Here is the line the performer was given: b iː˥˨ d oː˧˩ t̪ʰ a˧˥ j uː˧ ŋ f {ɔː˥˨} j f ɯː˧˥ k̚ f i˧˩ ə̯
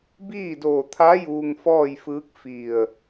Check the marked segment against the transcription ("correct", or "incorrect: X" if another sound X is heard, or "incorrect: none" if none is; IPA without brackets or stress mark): correct